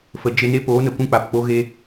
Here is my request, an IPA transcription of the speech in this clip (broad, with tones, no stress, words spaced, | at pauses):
fə˨ d͡ʒe˧ne˦ poː˨˦nə˨ kʷũ˦k͡pa˨pk͡po˦ɣe˦